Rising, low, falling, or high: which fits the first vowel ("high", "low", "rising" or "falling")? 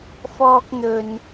high